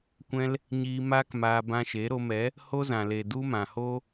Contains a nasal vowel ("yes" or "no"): yes